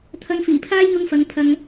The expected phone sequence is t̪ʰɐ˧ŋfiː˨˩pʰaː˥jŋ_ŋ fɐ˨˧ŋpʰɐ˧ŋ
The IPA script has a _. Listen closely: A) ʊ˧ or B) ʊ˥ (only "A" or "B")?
A